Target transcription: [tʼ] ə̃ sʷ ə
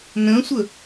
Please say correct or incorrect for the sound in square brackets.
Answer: incorrect: n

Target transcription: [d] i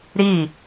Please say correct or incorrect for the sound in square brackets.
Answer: incorrect: ɾ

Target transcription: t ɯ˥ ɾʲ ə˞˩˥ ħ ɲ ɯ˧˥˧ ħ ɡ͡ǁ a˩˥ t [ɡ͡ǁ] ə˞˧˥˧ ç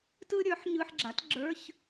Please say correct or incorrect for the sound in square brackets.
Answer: correct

